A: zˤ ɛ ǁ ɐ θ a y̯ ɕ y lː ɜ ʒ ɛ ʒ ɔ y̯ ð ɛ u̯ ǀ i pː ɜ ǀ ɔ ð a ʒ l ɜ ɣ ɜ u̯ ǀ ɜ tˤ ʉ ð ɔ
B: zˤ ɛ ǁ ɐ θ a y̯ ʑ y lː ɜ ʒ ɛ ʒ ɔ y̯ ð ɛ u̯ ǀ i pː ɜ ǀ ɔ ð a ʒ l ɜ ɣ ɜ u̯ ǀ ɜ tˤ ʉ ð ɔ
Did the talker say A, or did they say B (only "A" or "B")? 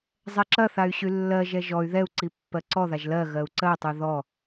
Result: A